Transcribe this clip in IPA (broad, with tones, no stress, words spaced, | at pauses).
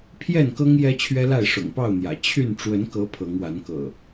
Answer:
pʰjɛ˥˨nkɤ˦ŋ jɛ˦t͡ɕʰɥɛ˦la˥˨ɪ̯ ʂʊ̰˨˩ŋpɑ˥˨ʊ̯n̪jä̰˨˩ t͡ɕʰy˥˨n ʈ͡ʂwə˨˦nkɤ˨˦ pʰɤ˨˦ŋwa˨˦nkɤ̰˨˩